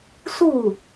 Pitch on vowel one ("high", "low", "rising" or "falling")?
falling